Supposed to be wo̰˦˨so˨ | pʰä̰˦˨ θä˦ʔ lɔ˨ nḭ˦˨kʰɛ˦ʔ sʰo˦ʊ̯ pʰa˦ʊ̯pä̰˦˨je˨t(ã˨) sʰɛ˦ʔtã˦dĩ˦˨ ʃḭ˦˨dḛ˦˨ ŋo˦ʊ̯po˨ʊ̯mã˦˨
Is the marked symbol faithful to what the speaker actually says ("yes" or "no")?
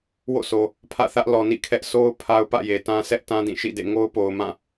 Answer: no